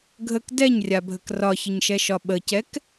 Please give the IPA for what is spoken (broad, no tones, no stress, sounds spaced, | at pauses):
ɡʱ ə k d ɛ ɲ rʲ a bʱ ə k r ɒ ç ə ɲ ʃ ɛ ʃ ɒ ɓ ə c ɛ k